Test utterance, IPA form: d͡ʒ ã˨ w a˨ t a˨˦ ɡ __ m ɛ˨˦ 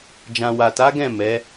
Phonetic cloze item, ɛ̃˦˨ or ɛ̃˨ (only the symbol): ɛ̃˦˨